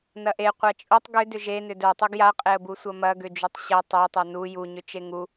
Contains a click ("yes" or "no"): no